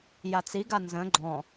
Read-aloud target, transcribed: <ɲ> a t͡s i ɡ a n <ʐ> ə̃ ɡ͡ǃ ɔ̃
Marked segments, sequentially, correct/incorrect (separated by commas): incorrect, incorrect